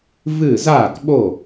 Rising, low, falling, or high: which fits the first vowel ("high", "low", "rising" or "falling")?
falling